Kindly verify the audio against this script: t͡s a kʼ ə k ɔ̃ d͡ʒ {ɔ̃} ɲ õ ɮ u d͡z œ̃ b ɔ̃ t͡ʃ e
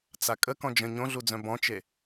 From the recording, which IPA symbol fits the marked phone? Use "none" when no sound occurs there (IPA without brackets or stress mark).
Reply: ə̃